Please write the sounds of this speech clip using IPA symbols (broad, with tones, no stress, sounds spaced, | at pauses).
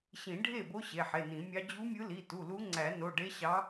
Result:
ɕ ĩ˨˩˦ ɖʱ e˥˩ b o˧˥ ɕ e˩˧˩ ħ e˩˧˩ n ĩ˨˩˦ mʲ ɑ˧˥ d͡ʑ u˧˥ mʲ ɯ˧˥ l i˩˧˩ t u˩˧˩ l u˧˥ ŋ͡ǀ æ˨˩˦ n o˩˧˩ ɖ e˧˥ ɕ ɑ˧˥